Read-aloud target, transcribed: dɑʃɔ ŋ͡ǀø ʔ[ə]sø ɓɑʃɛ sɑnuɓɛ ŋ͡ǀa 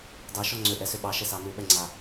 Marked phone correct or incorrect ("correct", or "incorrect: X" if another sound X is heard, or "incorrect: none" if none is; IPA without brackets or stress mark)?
incorrect: ɛ